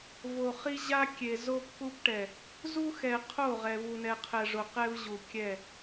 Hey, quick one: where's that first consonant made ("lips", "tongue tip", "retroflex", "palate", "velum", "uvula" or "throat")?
lips